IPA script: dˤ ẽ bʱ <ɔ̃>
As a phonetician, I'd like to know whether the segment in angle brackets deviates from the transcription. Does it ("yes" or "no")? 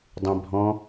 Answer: no